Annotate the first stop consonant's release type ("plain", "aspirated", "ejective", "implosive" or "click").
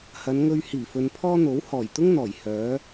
aspirated